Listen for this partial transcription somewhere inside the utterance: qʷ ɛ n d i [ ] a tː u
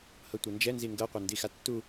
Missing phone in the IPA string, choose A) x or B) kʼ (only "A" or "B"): A